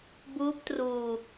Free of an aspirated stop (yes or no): yes